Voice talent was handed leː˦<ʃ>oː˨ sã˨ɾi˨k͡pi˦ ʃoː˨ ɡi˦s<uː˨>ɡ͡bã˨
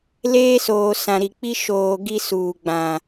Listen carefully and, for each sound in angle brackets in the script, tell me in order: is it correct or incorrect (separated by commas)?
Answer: incorrect, correct